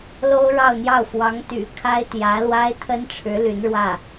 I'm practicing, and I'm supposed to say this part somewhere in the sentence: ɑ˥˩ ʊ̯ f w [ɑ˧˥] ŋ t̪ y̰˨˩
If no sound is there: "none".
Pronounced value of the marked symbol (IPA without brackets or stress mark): ɑ˧˥